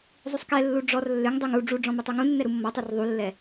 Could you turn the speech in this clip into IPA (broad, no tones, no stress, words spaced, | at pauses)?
zˤusˤkɛlːu ɖ͡ʐɔr lːʏŋ dˤʏŋ u ɖ͡ʐuɖ͡ʐɔ̃ mutˤuŋũnːɛ ɾumːɔtˤə˞r ðˤulːɛ